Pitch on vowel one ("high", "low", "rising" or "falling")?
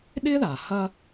high